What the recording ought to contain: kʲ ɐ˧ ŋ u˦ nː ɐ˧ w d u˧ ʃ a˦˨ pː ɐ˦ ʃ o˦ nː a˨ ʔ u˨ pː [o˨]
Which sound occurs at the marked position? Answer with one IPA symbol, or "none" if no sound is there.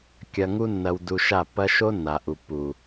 u˨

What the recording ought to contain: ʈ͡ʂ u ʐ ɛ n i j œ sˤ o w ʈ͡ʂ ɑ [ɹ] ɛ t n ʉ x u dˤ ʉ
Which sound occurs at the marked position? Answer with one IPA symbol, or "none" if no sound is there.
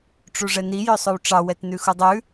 w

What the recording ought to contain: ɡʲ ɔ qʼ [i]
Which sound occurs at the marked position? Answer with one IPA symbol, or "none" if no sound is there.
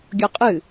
ɨ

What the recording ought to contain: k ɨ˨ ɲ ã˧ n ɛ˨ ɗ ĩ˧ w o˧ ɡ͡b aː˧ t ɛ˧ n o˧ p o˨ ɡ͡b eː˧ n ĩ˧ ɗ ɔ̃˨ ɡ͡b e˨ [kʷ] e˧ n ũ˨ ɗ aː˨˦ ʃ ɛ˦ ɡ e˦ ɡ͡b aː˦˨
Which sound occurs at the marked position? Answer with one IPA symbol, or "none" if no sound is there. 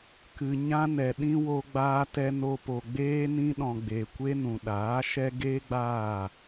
kʷ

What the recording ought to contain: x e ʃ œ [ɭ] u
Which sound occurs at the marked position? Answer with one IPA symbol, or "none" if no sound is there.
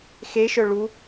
ɭ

